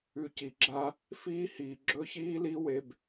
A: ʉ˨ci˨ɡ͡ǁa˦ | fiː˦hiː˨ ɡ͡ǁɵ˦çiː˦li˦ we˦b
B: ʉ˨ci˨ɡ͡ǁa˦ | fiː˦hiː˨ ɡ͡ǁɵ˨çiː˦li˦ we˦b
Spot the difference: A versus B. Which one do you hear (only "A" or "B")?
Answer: A